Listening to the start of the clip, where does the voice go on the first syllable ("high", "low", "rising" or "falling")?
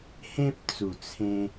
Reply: high